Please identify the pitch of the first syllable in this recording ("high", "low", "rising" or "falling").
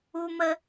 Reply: high